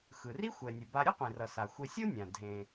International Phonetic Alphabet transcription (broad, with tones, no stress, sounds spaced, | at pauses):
x ɯ˩ r i˥ xʷ ɛ˩ nʲ ɯ˩ b a˧ ɾʲ ɯ˥ qʷ ĩ˩ r ʌ˩ s a˩ xʷ e˧ sʲ o˥ nʲ ã˩ dʱ ẽ˩